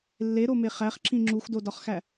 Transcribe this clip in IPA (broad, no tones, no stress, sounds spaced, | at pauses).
lː e ɾ o m e χ æ χ ǁ ĩ ŋ͡ǁ u x d o d ɒ χ x æ